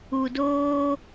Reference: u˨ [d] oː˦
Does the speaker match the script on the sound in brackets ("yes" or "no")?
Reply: yes